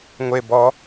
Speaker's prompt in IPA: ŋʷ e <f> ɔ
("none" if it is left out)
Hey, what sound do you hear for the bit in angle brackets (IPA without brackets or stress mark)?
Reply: b